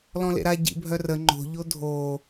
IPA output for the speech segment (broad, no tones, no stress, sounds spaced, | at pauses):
l ɔ̃ l ḛ ɾ a ɟ ḭ bʱ œ r ə ŋ͡ǃ o̤ ʎ o dʱ o